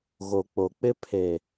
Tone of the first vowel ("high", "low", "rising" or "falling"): low